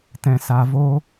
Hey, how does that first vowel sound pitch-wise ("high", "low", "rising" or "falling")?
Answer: low